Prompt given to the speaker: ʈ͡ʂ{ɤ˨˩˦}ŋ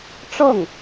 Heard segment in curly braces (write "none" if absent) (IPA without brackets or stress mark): ɤ˥˩